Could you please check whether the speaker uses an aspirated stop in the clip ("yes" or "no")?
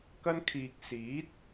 yes